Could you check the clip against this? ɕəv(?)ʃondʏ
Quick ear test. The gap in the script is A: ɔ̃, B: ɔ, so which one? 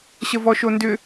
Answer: B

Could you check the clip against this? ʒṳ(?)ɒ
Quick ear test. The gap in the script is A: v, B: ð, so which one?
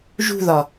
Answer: B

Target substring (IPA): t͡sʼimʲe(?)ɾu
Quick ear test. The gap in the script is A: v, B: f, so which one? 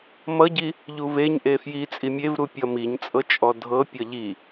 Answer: A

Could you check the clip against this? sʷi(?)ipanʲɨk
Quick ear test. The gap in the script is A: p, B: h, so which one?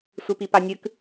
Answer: A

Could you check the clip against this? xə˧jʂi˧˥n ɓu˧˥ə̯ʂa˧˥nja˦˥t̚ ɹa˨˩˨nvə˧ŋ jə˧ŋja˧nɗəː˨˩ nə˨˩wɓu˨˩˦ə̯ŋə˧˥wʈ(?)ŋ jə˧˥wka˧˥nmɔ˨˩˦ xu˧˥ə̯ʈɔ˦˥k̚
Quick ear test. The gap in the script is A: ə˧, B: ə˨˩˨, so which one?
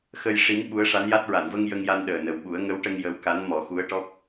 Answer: A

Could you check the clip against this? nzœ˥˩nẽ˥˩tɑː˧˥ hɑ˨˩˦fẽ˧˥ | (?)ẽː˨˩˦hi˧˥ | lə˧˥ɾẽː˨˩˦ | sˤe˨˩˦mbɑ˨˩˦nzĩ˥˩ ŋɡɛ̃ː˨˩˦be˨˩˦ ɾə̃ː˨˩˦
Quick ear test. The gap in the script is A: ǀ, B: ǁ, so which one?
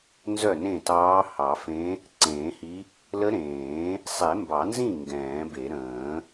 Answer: A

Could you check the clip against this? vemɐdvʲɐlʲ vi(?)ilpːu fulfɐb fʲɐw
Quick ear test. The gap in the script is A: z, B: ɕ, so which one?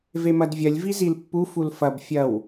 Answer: A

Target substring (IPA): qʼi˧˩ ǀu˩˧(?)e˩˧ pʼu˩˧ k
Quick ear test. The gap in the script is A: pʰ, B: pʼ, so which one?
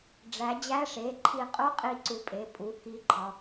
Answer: B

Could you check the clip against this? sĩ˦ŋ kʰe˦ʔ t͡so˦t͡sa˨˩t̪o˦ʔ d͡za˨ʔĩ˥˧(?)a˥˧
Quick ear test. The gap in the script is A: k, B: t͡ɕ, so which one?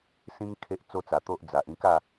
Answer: A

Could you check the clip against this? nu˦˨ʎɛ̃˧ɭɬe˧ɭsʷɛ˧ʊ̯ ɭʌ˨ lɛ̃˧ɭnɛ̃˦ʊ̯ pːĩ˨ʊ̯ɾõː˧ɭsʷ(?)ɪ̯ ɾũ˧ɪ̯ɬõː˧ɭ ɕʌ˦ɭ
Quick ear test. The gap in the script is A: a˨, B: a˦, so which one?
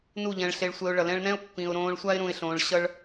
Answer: B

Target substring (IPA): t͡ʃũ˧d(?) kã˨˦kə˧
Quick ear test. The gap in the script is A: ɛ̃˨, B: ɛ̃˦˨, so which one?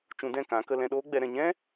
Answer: B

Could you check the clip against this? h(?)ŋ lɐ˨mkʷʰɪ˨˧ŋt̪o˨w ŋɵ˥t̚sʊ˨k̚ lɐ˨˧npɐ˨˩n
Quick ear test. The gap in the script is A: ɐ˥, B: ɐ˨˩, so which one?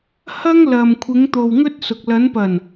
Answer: A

